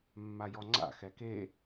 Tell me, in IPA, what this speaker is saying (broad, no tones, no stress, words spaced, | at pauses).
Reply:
mːajɔŋ͡ǀa̰ xɛke